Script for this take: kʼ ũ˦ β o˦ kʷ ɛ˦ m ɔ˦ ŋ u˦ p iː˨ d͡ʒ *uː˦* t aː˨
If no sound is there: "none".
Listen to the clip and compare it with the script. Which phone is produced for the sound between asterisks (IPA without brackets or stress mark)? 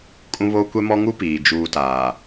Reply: uː˨